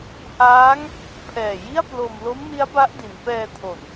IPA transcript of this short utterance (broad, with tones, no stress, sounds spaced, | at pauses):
h aː˦˥ ŋ | pʰ ɛː˨˩ j i˥˩ a̯ p l o˧ m l o˦˥ m n i˦˥ a̯ b a˦˥ ʔ d i˩˦ n p ɛː˧ tʰ o˨˩ n